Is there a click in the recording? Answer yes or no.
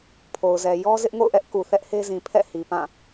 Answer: no